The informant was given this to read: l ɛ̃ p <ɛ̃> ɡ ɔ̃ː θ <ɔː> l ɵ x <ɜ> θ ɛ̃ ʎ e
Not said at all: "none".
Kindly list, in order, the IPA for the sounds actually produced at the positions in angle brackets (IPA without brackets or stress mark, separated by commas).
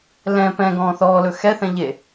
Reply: ɛ̃, ɔː, ɛ